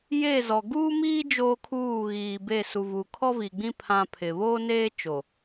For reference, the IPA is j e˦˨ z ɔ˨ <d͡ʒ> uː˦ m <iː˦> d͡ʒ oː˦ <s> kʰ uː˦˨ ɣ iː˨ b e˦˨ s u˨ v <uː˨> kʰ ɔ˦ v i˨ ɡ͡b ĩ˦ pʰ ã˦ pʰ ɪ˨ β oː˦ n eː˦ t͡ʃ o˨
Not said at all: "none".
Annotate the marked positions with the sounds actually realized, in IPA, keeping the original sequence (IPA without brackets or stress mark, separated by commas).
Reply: ɡ, iː˦, none, uː˨